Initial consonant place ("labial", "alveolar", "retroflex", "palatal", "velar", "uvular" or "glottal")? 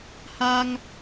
glottal